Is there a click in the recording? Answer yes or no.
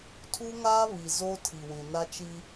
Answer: no